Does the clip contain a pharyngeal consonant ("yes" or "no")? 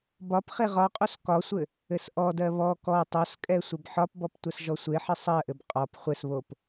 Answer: yes